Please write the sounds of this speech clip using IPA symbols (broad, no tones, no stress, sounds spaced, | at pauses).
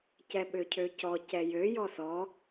c ɛ ɓ ø cʰ ø c ɔ c ɛ j ø j ɔ s ɔ